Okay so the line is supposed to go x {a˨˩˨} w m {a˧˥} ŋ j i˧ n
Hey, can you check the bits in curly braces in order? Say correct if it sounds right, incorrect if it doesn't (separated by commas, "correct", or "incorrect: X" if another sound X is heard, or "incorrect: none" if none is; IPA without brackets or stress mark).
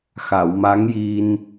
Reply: correct, correct